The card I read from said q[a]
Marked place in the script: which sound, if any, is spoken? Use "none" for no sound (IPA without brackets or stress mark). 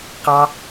ɑ